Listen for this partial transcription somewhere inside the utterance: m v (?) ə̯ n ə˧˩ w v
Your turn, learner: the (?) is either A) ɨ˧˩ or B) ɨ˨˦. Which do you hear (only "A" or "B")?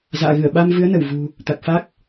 B